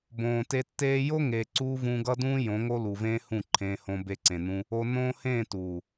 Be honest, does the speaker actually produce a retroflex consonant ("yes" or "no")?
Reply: no